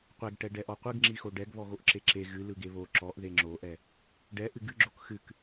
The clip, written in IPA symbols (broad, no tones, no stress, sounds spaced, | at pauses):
qʷ ɛ ɡ ʈ ɛ ɖ ɛ ʔ ɔ qʷ ɯ ɡ ŋ͡ǁ i x o ɖ ɛ ɡ β ɔ ɣ o ʔ ǁ e ǁ e ɣ ɨ l ɯ ɡ e β o ǁ ɔ ʔ ð e ŋ͡ǁ o ʔ ɛ | ɖ ɛ ʔ ɨ ɡ ɨ ɡ͡ǁ o k x ɨ k